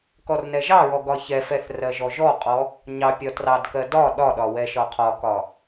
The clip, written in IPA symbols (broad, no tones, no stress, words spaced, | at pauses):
kɔrnɛʒɑɹɔ ɡɒçɛfɛθ rɜʒɔʒɔqʼɔ | ɲɑ pʲɒtrɑdkɜ dɒ ɗɒɗɒ wɛʃɒqʰɒkɒ